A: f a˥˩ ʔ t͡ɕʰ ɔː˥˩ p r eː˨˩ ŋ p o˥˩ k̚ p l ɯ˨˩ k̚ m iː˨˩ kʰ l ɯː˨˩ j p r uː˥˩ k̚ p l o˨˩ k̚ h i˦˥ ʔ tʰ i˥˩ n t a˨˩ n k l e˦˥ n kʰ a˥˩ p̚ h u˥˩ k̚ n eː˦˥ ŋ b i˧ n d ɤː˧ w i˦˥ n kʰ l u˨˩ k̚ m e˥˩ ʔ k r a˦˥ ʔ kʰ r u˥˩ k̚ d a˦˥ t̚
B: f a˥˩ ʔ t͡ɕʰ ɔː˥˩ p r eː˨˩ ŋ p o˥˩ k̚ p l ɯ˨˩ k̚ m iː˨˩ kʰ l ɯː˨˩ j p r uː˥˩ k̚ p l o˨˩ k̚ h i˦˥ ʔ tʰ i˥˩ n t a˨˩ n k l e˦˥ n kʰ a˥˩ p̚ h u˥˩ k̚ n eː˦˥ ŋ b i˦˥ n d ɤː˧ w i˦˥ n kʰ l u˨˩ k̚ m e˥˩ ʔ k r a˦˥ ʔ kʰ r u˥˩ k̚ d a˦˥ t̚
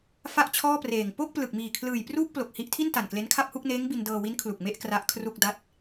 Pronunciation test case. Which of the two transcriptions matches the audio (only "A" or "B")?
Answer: A